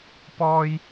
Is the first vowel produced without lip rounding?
no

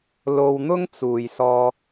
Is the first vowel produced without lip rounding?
no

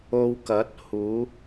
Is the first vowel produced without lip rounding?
no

